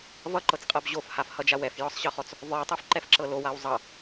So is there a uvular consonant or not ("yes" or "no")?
yes